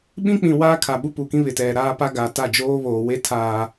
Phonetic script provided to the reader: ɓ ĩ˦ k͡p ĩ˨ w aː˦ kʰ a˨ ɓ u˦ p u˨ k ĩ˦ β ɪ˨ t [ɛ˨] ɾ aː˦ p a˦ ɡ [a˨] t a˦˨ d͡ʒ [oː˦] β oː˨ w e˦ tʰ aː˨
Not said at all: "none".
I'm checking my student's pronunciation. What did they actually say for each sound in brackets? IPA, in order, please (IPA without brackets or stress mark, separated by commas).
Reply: ɛ˨, a˨, oː˦